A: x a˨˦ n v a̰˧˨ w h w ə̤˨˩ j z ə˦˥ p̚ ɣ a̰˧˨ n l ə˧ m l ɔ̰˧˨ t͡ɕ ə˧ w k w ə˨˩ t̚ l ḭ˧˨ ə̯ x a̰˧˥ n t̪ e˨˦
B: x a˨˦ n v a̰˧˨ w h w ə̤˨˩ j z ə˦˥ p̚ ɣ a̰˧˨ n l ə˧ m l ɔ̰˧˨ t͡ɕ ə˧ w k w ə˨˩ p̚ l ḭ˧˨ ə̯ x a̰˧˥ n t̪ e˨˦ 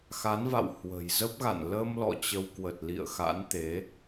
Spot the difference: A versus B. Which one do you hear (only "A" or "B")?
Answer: A